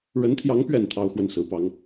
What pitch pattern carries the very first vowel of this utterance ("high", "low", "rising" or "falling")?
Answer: rising